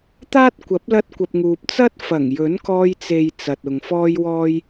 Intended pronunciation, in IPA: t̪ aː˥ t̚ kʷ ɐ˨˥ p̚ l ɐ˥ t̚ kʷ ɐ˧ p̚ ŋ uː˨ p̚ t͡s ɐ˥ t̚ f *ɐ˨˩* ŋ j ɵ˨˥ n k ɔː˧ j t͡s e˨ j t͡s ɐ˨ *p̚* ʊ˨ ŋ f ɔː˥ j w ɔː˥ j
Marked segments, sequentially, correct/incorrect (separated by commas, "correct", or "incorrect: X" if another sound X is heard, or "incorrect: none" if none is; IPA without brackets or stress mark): correct, incorrect: t̚